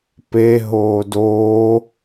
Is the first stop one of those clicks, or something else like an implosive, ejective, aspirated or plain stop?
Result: plain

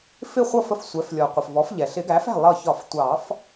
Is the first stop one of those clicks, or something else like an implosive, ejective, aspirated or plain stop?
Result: plain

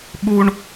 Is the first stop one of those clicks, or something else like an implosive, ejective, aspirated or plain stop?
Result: implosive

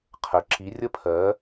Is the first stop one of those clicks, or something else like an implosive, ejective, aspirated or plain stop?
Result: aspirated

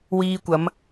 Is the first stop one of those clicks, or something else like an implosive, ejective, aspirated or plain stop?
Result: plain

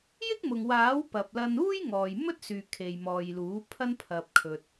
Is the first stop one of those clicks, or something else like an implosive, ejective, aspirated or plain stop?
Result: plain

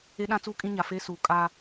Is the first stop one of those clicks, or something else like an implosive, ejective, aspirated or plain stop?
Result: implosive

